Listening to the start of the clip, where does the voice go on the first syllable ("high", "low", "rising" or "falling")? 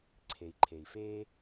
low